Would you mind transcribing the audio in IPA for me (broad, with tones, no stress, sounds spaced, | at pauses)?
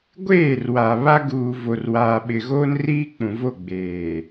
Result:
ɡʷ eː˦˨ r w a˨ β a˦ ɡ uː˨ v o˨ r w aː˨ ɓ ɪ˨ ɣ oː˦ n r iː˦ k͡p ũ˨ v o˦˨ ɡ͡b eː˨